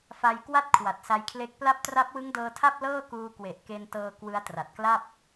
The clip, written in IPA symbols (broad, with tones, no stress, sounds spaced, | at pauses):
f a˧ j k w a˥˩ t̚ kʰ w a˨˩ t̚ s a˧ j kʰ l e˦˥ k̚ p l a˦˥ p̚ t r a˦˥ p̚ w ɯ˦˥ ŋ d ɤː˧ tʰ a˥˩ p̚ l ɤː˥˩ k uː˧ k w e˨˩ ʔ k e˧ n t ɤː˧ k w ɯ˦˥ a̯ t r a˨˩ t̚ k l a˥˩ p̚